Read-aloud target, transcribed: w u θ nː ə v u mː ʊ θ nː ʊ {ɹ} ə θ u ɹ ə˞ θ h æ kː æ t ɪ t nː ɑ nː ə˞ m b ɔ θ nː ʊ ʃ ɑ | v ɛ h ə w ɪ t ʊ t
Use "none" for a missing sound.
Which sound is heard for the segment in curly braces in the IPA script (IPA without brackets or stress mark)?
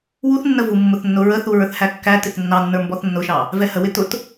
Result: ɹ